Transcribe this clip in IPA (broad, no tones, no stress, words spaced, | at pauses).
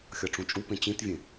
xʲɒʈ͡ʂũt͡ʃʼupẽ t͡ɕĩtvʲẽ